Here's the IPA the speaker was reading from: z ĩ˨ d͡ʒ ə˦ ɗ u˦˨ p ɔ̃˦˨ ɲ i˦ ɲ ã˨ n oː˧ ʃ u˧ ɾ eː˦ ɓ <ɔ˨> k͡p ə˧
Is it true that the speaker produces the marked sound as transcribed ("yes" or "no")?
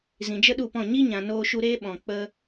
no